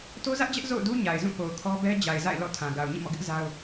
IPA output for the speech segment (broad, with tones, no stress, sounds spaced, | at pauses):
t o˦ z ä˦ ʔ d͡ʑ ɛ˦ ʔ z o̰˦˨ ʊ̯ d u˦ ɲ a˨ ɪ̯ z ũ˦˨ p o˨ ʊ̯ kʰ ɔ˦ b ɛ˦ d͡ʑ a˨ ɪ̯ z a̰˦˨ ɪ̯ l ɔ̰˦˨ tʰ ã˨ ɡ a˨ ʊ̯ ɲ ĩ˦˨ m ɔ̰˦˨ ɡ ɪ˦ ʔ z a˦ ʊ̯